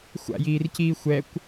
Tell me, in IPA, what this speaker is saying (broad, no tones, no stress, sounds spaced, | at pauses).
xʷ a̰ j iː r c iː xʷ ɛ kʷ